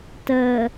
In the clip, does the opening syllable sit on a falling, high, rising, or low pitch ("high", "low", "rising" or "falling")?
low